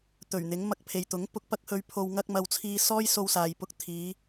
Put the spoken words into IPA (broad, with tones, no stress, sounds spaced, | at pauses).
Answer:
t̪ ɵ˨˩ ɥ n̪ ɪ˨˥ ŋ m ɐ˧ k̚ pʰ e˨ j t̪ ʊ˨˥ ŋ p ʊ˧ k̚ p ɐ˥ k̚ h ɵ˧ ɥ pʰ o˧ w ŋ ɐ˥ k̚ m ɐ˧ w t͡sʰ iː˧ s ɔː˥ j s o˧ w s aː˨ j p ʊ˧ k̚ t̪ʰ iː˨˧